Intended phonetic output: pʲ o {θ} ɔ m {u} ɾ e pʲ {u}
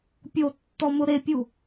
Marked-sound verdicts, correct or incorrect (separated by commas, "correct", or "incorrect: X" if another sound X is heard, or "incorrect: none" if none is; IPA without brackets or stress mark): incorrect: tː, incorrect: ʊ, correct